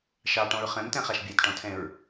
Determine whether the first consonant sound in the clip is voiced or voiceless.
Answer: voiceless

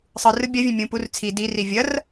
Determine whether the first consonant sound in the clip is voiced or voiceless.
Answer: voiceless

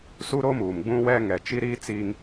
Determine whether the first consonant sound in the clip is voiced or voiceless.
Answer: voiceless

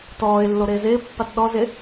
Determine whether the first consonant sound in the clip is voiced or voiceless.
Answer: voiceless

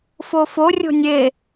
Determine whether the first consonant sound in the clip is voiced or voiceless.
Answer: voiceless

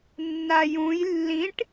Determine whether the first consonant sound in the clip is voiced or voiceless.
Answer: voiced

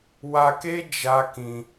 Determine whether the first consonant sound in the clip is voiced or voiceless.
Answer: voiced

